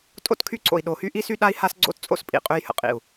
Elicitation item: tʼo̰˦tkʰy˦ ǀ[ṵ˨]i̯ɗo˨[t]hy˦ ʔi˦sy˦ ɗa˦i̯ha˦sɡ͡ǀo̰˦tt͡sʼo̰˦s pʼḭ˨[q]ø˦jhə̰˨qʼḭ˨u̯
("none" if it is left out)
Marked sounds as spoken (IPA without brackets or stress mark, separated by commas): o̰˨, none, qʼ